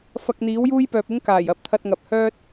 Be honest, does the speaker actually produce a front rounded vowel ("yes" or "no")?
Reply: yes